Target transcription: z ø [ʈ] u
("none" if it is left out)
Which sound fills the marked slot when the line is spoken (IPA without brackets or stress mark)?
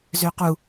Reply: q